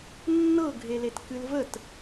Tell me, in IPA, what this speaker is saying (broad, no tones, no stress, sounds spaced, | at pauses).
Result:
nː ɤ ɡʱ e l e t k ɨ l v ə t